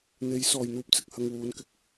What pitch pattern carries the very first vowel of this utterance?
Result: rising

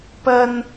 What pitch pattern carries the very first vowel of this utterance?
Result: high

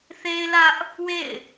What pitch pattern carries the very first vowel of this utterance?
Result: high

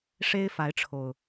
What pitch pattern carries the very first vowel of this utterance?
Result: high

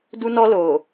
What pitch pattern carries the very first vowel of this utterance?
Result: high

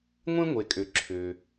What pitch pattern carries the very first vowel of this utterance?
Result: high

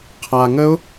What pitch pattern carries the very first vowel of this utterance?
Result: low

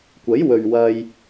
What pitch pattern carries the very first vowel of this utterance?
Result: rising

